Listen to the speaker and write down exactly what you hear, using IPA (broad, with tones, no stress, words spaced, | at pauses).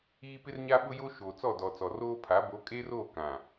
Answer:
iː˦ pɪ˦rɲa˦ɓʊ˦jo˦ ʃoː˨t͡sɔ˦˨dɔ˨t͡sɔ˨ roː˦pʰa˨˦ bo˨˦kʼeː˦roː˦˨ kã˨